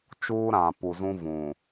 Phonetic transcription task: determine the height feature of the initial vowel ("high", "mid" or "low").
high